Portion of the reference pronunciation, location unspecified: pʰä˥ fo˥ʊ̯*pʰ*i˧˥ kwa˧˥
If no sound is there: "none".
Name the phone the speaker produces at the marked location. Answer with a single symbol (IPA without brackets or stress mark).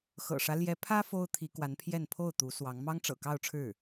t̪ʰ